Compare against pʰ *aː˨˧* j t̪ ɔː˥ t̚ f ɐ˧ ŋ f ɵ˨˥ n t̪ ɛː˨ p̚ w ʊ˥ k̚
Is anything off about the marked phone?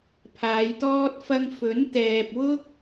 no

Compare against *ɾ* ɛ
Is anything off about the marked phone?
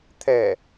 yes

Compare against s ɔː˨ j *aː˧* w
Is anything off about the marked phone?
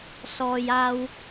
no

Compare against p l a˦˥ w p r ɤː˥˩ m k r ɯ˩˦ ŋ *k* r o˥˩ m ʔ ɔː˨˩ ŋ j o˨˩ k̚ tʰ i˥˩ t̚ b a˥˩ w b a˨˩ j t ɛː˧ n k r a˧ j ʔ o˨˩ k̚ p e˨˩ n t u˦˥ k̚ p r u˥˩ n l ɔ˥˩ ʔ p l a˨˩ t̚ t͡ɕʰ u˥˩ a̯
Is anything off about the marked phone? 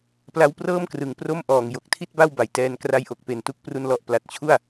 yes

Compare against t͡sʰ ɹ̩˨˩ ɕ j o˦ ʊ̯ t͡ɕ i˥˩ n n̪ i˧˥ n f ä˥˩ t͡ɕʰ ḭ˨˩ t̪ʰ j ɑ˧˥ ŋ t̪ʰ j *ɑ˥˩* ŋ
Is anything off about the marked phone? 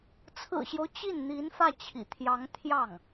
no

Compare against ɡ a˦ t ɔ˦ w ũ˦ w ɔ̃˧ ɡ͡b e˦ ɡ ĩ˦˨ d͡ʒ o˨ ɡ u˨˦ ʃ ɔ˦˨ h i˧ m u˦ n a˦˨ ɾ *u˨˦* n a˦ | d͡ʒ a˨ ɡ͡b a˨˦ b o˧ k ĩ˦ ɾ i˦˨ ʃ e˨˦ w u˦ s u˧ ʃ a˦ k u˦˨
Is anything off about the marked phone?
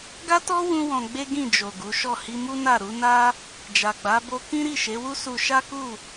no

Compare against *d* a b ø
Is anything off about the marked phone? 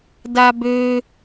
no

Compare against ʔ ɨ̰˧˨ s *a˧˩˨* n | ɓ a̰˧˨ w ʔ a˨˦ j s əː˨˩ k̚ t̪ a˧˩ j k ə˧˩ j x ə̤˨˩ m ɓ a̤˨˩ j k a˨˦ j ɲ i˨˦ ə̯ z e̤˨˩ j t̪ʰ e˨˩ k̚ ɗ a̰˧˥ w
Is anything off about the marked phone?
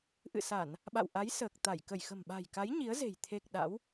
no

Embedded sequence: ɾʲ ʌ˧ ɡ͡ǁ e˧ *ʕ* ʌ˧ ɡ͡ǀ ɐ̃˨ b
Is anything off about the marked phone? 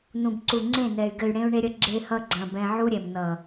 yes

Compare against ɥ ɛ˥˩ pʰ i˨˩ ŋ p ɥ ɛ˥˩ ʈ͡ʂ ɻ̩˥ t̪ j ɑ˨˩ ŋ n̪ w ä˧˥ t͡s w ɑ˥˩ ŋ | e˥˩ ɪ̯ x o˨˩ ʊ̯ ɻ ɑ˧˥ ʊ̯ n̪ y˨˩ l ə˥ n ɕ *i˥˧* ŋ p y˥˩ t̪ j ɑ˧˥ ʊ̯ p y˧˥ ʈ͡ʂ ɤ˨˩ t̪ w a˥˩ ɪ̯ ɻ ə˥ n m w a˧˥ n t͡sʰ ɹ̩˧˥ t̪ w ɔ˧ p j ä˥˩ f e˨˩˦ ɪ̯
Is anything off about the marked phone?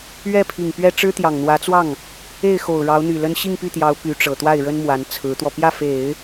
no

